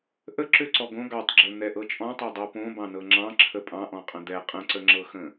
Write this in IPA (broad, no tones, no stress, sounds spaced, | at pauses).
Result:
ʔ ə ǁ ø ǀ ɔ ɡ õ ɡ ɑ tˤ ɡ͡ǁ ə˞ n̪ ɛ ʔ ɤ t͡ʃʼ ɔ̃ tˤ ɛ dˤ o p õ b ɑ̃ n ɤ ŋ͡ǁ ɑ̃ ǁʰ ə pʼ ɑ̃ ʔ ɔ̃ qʼ ə̃ d̪ ɛ qʼ ə̃ ǀ ə ŋ͡ǁ ɤ x ə̃